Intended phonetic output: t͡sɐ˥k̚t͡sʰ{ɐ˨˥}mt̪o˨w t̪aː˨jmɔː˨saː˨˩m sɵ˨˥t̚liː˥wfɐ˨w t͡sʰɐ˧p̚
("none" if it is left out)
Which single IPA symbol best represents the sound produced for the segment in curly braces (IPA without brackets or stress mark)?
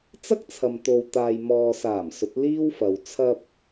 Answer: ɐ˨